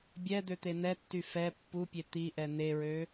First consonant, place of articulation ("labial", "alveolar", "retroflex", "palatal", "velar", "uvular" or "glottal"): labial